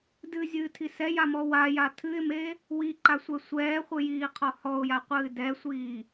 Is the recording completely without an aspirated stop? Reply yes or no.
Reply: no